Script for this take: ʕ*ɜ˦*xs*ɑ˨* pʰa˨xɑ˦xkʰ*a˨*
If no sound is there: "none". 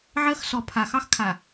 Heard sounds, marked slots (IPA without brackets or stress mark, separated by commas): ɜ˦, ɔ˨, a˨